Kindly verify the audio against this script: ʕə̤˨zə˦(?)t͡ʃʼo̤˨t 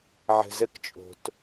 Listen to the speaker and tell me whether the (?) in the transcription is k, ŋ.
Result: k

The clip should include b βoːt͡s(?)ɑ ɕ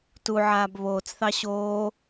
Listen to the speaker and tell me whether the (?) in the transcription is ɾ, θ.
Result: θ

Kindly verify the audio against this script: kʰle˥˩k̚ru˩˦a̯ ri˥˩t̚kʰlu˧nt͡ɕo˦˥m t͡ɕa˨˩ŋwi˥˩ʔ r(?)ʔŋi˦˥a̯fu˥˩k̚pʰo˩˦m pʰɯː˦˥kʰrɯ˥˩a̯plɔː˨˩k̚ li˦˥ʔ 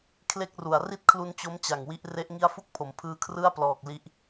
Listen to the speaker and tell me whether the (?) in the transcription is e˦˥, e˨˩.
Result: e˦˥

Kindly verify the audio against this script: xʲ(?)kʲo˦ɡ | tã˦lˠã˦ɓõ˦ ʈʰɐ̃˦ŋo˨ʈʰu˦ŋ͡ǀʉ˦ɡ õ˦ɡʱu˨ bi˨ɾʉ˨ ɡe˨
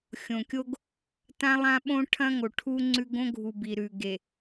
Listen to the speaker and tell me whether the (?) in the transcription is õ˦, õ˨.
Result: õ˨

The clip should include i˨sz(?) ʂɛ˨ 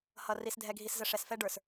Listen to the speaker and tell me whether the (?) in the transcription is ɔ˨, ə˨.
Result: ə˨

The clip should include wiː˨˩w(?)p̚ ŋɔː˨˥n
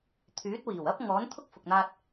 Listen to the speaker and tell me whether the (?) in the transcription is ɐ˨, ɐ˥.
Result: ɐ˥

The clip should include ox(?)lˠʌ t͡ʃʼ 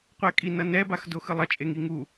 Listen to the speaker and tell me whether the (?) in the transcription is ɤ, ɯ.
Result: ɯ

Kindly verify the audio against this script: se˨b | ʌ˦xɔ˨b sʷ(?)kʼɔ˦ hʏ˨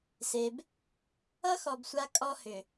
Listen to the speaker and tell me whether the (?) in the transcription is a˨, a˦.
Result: a˦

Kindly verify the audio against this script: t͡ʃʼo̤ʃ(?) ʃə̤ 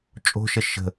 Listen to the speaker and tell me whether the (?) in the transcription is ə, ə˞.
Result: ə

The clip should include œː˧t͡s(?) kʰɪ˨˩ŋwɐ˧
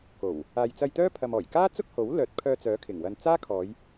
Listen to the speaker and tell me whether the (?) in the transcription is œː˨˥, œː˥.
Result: œː˨˥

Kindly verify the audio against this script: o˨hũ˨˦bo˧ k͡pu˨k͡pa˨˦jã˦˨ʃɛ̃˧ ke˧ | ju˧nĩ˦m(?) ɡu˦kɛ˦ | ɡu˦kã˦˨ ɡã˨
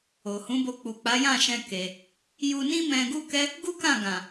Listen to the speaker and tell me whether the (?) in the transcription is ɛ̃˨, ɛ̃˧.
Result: ɛ̃˧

